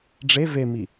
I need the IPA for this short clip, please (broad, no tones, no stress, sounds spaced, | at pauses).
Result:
ɖ͡ʐ e v e m i